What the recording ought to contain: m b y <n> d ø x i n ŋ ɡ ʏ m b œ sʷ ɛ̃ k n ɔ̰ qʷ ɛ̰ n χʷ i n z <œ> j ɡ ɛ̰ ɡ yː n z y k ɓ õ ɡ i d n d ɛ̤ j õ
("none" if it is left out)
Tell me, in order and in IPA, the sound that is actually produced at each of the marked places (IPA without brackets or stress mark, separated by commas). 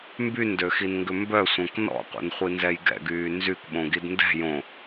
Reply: n, ɛ